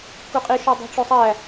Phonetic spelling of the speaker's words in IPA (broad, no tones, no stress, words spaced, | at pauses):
kuqʼi ʃudˤo̤ʈ͡ʂosˤæ